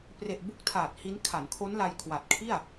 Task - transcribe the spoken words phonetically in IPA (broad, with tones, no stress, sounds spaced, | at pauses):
p r e˨˩ ʔ b u˥˩ k̚ tʰ aː˨˩ t̚ h i˦˥ n kʰ a˩˦ n kʰ o˦˥ n l a˧ j kʰ w a˨˩ t̚ kʰ i˥˩ a̯